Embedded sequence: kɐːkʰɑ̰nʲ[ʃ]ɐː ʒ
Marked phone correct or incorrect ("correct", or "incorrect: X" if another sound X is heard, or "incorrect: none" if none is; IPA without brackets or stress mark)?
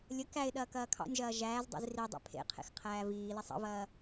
incorrect: ʒ